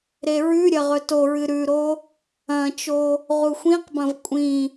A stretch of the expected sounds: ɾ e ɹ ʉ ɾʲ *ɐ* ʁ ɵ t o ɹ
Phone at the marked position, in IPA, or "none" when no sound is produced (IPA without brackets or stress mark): ɐ